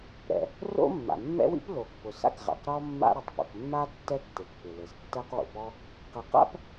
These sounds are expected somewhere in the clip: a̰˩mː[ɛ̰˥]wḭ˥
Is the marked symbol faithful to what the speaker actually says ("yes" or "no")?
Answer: yes